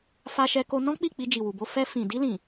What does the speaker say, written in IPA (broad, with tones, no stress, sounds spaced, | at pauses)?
f a˧ ʃ ɛ˧ k o˧ n ɔ̃˦ k͡p i˦˨ k͡p i˧ d͡ʒ i˨ w u˨ b o˧ f ɛ˧ f ĩ˨ d i˧ l ĩ˨